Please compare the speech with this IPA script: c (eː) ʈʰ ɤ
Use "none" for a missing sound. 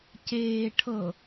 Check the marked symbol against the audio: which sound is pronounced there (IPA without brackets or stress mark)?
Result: eː